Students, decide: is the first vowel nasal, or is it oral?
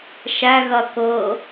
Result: oral